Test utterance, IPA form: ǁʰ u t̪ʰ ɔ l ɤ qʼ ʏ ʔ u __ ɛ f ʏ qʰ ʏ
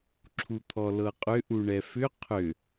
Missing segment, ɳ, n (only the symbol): ɳ